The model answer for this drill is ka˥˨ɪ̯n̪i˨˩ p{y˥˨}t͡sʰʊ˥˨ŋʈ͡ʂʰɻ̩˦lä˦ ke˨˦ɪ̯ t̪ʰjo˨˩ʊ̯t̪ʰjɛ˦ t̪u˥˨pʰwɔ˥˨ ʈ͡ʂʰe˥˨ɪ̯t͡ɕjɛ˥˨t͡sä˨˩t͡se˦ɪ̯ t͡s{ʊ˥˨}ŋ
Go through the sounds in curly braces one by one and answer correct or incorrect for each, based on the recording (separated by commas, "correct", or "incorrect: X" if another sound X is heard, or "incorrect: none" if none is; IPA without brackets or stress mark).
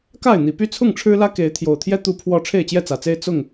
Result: correct, correct